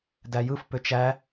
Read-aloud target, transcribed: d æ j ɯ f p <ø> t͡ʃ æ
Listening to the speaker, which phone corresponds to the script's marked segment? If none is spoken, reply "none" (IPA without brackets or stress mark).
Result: ø